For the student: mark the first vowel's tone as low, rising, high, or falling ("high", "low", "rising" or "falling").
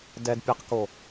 low